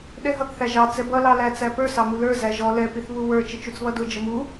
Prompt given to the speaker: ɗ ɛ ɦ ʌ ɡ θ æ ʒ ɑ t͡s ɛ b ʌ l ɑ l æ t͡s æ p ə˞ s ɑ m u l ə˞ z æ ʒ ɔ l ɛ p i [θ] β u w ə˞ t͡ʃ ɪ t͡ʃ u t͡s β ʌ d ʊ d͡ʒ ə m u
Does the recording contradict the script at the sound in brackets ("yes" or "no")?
no